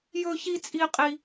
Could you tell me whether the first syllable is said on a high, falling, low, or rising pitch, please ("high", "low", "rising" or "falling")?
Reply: high